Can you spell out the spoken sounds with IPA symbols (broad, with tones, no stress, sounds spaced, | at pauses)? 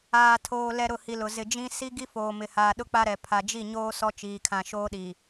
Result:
aː˨ tʰ oː˨ l ɛ˦ ɾ ʊ˦˨ h i˨ l ʊ˨ z ɪ˨ d͡ʒ ĩ˦ s i˦ ɡ i˦ f oː˨ m ɪ˨ h aː˨ ɗ ʊ˦ k͡p a˦ ɾ ɛ˨ pʰ a˨ d͡ʒ i˦˨ ɲ oː˦ s ɔ˦ t͡ʃ iː˨ kʰ ã˨ ʃ oː˦ ɗ iː˨